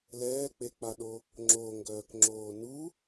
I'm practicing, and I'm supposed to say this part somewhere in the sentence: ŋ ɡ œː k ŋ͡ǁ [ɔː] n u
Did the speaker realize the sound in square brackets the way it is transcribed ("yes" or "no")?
no